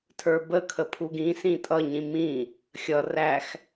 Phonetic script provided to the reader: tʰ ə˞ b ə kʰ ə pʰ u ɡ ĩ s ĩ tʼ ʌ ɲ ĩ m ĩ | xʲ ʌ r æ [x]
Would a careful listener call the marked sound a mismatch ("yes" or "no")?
no